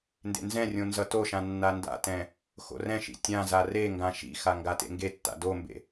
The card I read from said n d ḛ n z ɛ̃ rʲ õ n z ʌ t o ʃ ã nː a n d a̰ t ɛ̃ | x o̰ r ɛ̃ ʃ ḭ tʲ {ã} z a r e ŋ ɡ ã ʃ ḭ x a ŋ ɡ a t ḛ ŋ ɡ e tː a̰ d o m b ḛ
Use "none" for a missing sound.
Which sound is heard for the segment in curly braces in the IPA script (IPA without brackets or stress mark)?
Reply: ã